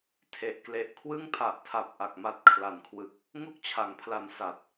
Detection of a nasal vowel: absent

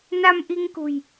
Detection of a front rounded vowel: absent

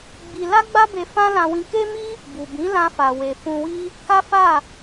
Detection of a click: absent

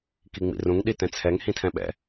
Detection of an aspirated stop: present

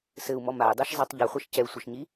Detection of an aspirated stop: absent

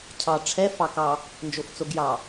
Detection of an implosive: absent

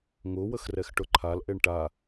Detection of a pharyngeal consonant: absent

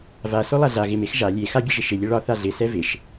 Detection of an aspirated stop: absent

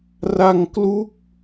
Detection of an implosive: absent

